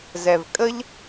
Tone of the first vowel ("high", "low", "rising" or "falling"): low